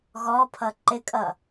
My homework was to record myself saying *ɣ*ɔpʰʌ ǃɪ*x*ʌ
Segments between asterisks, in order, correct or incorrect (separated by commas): correct, incorrect